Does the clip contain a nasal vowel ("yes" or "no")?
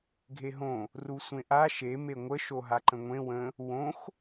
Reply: yes